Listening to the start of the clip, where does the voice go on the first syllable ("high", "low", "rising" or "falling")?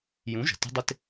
rising